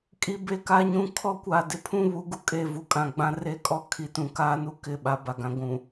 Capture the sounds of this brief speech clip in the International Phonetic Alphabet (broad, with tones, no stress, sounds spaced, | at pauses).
kʼ i˨ b e˨ k a˦ ɲ ũ˦ kʰ ɔ˦ kʷ a˨ d ɪ˦ pʰ ũ˦ β u˨˦ ɡ u˨ kʼ e˨ v u˨ kʼ ã˨ ɡ͡b ã˦ r e˦ kʼ ɔ˦ kʰ i˨ t ũ˨ k aː˦ n u˦ k ɪ˦˨ ɓ a˦ b a˨ ɡ ã˦ ɡʷ ũ˨